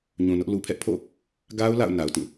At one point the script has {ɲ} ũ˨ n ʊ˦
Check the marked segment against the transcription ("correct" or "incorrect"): correct